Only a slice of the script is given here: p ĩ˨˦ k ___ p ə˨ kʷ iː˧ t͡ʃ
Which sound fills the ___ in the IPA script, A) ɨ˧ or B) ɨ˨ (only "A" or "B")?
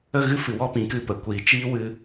A